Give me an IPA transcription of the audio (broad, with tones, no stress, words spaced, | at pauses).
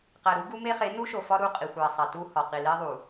qæ˨ɾu˦ ɡu˦me˦χe˨˦ nu˦ʃo˨fɒ˦ ɾu˦˨qʼi˨xʷæ˨ sˤæ˨tu˦hɒ˨ qi˨le˦ ðˤu˨